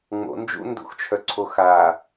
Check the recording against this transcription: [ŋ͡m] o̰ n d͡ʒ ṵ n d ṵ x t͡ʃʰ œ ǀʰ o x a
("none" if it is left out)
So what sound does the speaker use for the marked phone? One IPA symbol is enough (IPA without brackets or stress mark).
ŋ͡m